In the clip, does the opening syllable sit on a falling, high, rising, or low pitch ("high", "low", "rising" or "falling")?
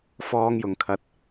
high